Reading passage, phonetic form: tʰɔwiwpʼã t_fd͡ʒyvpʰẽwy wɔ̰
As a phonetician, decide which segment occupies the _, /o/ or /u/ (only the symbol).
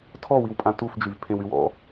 u